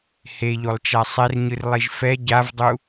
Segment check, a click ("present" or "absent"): absent